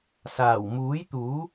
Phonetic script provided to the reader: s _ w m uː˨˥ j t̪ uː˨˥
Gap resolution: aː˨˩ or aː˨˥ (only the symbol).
aː˨˩